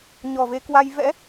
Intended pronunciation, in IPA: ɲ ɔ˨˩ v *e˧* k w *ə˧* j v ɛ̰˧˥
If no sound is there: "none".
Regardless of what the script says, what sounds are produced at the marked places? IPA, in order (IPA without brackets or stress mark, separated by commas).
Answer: e˧, a˧